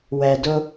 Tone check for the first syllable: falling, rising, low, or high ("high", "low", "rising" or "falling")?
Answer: low